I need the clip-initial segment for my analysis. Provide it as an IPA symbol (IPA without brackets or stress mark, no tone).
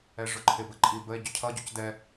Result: ɛ